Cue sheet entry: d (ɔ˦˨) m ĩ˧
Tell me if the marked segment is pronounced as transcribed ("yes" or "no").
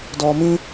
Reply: no